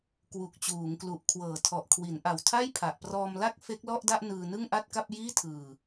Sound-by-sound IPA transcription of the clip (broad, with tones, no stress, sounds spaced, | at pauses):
k w u˨˩ k̚ t͡ɕ uː˩˦ ŋ k l u˨˩ ʔ kʰ w ɤː˨˩ tʰ ɔ˨˩ ʔ kʰ w i˩˦ n ʔ a˨˩ w tʰ a˥˩ j pʰ a˨˩ ʔ p r ɔː˧ m l a˥˩ k̚ f e˦˥ k̚ l ɔ˥˩ ʔ d a˥˩ ʔ n ɯː˧ n ɯ˥˩ ŋ ʔ a˥˩ t̚ k a˥˩ p̚ j iː˥˩ tʰ ɯː˨˩